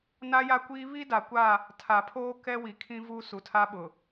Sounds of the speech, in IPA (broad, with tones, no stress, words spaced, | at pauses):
na˦ja˦kʷiː˦ βi˦ da˨kʷa˦˨ | tʰa˨pʰoː˦ kɛ˦wi˨kʰĩ˦ vu˦ su˨tʰa˦ɓʊ˨